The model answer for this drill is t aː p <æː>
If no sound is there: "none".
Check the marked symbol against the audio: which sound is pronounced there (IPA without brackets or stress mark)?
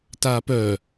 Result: œː